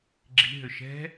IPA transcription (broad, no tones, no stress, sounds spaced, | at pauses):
ɡ͡ǁ i̤ ɦ ʏ ʃ ɛ̤